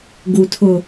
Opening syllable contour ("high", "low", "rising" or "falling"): low